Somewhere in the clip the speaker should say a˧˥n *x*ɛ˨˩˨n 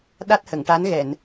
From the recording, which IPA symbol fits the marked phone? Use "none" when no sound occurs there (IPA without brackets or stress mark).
ɣ